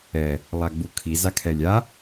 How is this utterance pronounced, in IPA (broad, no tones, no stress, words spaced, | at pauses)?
ɛ | lˠaɡ͡bukʰi zakʰɛlʲa